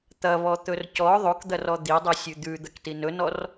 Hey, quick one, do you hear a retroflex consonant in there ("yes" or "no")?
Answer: no